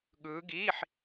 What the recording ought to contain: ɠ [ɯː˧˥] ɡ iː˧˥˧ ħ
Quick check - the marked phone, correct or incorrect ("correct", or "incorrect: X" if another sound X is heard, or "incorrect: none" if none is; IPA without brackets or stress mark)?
correct